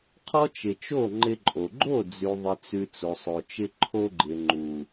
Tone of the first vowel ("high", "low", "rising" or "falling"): high